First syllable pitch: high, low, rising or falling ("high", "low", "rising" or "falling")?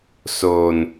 low